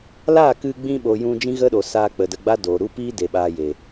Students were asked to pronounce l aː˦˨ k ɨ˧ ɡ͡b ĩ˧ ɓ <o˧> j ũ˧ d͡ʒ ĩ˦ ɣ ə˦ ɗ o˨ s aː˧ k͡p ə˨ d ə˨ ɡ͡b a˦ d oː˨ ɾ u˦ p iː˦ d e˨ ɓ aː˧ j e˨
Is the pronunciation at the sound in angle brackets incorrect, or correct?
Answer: incorrect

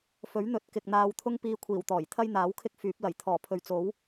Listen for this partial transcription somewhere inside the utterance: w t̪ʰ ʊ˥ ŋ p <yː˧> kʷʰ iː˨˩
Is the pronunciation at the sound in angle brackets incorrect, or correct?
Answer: incorrect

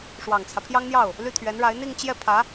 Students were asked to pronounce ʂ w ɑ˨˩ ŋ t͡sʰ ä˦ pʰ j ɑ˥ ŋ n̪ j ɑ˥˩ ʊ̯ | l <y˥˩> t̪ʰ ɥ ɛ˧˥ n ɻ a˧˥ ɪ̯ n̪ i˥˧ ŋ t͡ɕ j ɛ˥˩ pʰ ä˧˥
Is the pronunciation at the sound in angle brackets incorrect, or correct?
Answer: correct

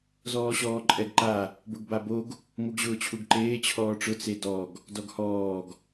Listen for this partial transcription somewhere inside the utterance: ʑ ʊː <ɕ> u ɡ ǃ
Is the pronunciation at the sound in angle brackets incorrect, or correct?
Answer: incorrect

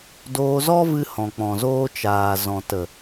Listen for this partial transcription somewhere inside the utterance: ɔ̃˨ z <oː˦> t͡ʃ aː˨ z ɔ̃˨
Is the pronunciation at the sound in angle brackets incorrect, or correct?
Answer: correct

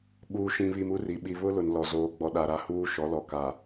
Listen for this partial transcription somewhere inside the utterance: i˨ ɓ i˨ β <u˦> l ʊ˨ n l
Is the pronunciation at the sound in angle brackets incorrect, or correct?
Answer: incorrect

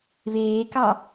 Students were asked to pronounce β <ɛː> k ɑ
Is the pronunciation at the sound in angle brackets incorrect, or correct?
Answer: incorrect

